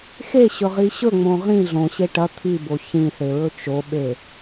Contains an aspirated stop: yes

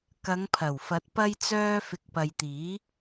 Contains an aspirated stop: yes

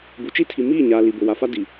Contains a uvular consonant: no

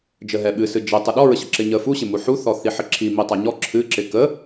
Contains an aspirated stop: yes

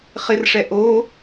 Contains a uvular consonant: yes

